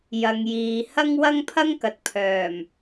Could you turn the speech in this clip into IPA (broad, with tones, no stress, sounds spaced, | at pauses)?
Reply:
j ɐ˨˧ ŋ j iː˨˧ h ɐ˥ ŋ w ɐ˥ ŋ pʰ ɐ˥ ŋ k ɐ˨ t̚ pʰ œː˨˩ m